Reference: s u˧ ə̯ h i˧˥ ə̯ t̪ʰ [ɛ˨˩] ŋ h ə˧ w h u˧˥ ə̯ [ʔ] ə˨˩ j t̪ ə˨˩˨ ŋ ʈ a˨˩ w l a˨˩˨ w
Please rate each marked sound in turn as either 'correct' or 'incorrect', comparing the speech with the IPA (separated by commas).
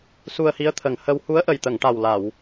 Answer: incorrect, correct